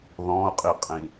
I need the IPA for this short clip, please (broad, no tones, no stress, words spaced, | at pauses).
ðɔ̃ʊ̯qʼiqʼĩ